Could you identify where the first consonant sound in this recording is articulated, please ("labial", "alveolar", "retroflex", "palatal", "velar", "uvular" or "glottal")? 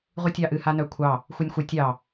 uvular